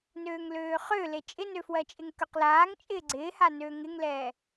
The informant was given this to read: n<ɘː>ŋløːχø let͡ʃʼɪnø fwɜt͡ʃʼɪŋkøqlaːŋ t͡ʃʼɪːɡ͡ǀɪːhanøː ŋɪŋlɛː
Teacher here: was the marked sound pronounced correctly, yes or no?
no